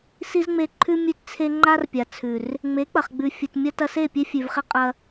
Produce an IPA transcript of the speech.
s i˦ z ŋ͡m e˧ ǃʰ ʉ˦ mʲ ʉ˦ t t͡sʰ e˦ ŋ͡ǃ a˦ r pʲ a˨ t͡sʰ ʉ˨ r | ŋ͡m e˨˦ k͡p ɐ˨ χ ɡ͡b ʉ˨ fʲ ɨ˨ t mʲ ɐ˦ t ɐ˧ s e˦˨ pʲ e˦ fʲ ʉ˨ v χ i˦ qʼ ɐ˦

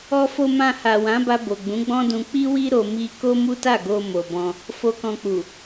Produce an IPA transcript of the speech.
ɔ˧ f o˧ m ã˧ h a˨ w ã˨˦ b a˧ b o˨ ɡ͡b ũ˨˦ ɡ͡b ɔ̃˦ d ũ˧ k͡p i˦ w i˦ ɾ o˧ m i˧ k o˦ m u˦ t a˦˨ ɡ o˧ m o˨ b ɔ̃˧ | f o˧ k ɔ̃˧ k͡p u˨

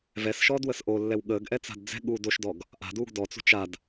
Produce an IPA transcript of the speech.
v ɛ s ʃ ɔː d w ə s ʔ o lː ɛ w ɠ əː ɡ ʔ ɛ t͡s a̤ d d͡z ɛ̤ ɠ uː d o ʃ d ɔ ɡ | ʔ a̤ d uː ɡ d ɔ t͡s ṳ t͡ʃ a d

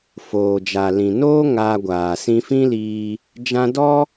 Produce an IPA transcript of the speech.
f oː˨ d͡ʒ a˨ l ĩ˨ n oː˦ ŋ aː˧ ɡʷ aː˨ s ĩ˧ f ĩ˦ l iː˧ | d͡ʒ ã˧ d ɔ˦

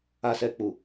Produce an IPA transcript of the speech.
a˨ s ɛ˨ k͡p u˨

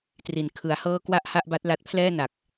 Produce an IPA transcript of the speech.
t r i˩˦ n kʰ ɯ˩˦ a̯ h ɤː˥˩ k w a˥˩ ʔ h a˥˩ ʔ b a˦˥ t̚ l a˦˥ t̚ pʰ l ɛː˥˩ n a˨˩ k̚

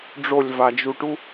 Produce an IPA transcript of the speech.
ɖ͡ʐ o lʲ v a d͡ʒ u ʈ u

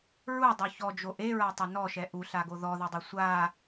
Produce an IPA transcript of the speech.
ɹ u dˤ o ç ɔ d͡ʒ o ʔ e ɹ a tˤ e n ɔ ʃ ɛ ʔ u ɬ a ɡ o ð ɔ ð ɛ dˤ e sʷ a

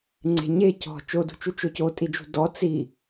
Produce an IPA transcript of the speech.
ŋ͡ǀ e̤ ɲ e c ɔ̤ t͡ʃ o d ṳ t͡ʃ u t͡ʃ o c o tʼ i d͡ʒ ṳ d ɔ t͡s i

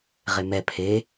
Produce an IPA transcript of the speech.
ʁ e m ɛ pʰ e

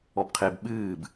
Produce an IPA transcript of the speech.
ɔ b qʰ e b ɓ ɨː b

